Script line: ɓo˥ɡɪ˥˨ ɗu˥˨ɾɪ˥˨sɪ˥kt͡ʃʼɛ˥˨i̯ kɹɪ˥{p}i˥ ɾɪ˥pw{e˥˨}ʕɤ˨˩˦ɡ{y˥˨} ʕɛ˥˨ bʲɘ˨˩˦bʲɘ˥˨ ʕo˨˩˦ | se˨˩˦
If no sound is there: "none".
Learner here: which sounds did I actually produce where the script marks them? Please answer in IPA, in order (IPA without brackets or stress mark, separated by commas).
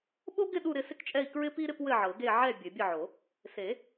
p, ɘ˥˨, e˥˨